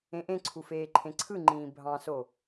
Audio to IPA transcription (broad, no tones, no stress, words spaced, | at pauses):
ẽʔẽǀʰu feːǃʰẽǀʰɯŋ͡ǃĩː bʱɑ̃so